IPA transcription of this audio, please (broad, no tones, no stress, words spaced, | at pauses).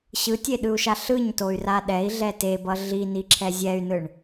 ɕɯtʲeɗɯu̯ʃa ɬɯɲtoy̯ra ɗɛi̯ɮɛ tebʌ ɮiniǁʰɛ zʲɛy̯nɯɳ